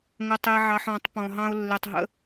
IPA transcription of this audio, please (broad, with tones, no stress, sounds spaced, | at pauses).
ŋ ə˨ tˤ e˨ ʕ ɑ˨ ħ ɔ̃˨˦ tˤ p ɔ̃˨ ɦ ɑ̃˦ ʊ̯ lː e˨ tˤ ɦ ə̰˦